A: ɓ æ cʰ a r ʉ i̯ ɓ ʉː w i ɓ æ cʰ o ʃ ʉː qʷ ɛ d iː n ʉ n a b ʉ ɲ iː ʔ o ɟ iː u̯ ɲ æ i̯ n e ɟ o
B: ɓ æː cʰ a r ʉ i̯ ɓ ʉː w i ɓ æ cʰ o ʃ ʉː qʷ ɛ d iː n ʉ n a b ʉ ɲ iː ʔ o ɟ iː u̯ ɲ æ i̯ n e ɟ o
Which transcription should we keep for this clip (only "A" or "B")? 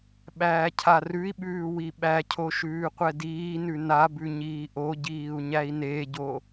B